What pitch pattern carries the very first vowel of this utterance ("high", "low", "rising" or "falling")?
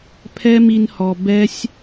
high